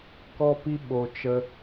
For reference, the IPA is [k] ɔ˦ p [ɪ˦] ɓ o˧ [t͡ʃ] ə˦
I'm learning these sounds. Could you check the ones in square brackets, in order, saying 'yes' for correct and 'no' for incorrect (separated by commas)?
yes, no, yes